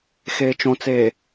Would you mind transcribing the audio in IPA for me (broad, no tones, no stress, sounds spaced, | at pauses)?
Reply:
x eː t͡ʃ õ t͡s eː